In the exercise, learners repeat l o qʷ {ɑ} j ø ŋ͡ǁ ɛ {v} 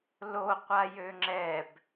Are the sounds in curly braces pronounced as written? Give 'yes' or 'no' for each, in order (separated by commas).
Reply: no, no